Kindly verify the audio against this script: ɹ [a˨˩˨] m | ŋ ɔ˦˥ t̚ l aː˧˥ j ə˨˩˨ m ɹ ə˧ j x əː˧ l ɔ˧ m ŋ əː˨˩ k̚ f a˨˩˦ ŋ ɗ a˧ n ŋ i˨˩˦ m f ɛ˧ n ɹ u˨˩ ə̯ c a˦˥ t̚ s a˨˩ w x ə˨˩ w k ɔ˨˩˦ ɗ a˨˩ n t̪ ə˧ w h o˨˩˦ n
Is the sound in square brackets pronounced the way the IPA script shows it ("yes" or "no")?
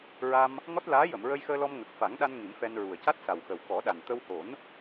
no